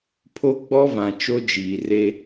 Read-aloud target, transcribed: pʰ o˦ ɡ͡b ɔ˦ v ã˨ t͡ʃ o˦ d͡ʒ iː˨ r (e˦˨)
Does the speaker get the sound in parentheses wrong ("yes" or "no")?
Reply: yes